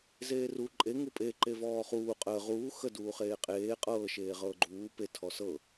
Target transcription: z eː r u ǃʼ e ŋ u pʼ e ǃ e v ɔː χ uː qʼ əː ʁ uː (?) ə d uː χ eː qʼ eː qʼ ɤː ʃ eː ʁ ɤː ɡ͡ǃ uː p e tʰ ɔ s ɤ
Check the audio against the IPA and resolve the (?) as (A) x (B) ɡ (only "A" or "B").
A